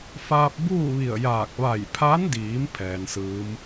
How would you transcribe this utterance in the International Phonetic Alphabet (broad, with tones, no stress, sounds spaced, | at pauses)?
f aː˧ p̚ b uː˥˨ ʋ i˧˩ ə̯ j aː˧˩ k̚ ʋ a˧˩ j pʰ a˧˥ n d iː˩˧ m pʰ ɛː˩ n s ɯː˧˥ m